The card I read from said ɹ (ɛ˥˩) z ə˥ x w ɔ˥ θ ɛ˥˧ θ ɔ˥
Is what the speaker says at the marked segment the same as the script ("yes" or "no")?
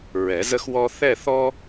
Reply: no